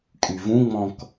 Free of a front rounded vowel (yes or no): no